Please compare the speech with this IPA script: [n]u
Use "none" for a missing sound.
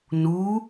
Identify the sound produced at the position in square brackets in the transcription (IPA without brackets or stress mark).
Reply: n